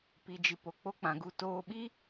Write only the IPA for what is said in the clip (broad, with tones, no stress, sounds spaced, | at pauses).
p i˨ d͡ʒ ɨ˨ p o˨ k͡p o˦ k͡p ã˨˦ ɡ u˧ t oː˧ ɓ i˦